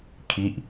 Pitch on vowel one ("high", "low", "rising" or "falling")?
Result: falling